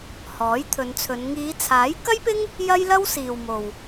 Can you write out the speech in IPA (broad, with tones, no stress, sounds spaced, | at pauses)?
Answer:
h ɔː˨˥ j t̪ʰ ɵ˨˧ n t͡sʰ ɵ˨˧ n ŋ iː˨˧ t͡sʰ aː˨˥ j k ɐ˥ j p ɪ˥ ŋ | j ɐ˥ j l ɐ˥ w s iː˨ w m o˨ w